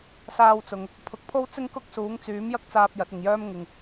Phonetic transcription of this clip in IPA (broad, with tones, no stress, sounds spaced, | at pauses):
s aː˧ w t͡s ʊ˨ ŋ | pʰ ʊ˨˥ k̚ pʰ o˥ w t͡s ɪ˥ ŋ k ʊ˥ k̚ s uː˨˥ ŋ t͡s yː˨˥ m j ɐ˥ k̚ t͡s aː˧ p̚ j ɐ˨˥ t̚ ɪ˨ ŋ j œː˥ m ŋ ɪ˨ ŋ